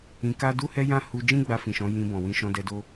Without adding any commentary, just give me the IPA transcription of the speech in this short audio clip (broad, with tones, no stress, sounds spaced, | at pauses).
ĩ˧ k a˦ d u˦ h ɛ˦ j ã˦ h u˧ d͡ʒ ĩ˦ ɡ͡b a˧ f ĩ˨ ʃ ɔ̃˨˦ j ĩ˧ b ɔ̃˨ w ĩ˧ ʃ ɔ̃˧ d ɛ˧ d o˦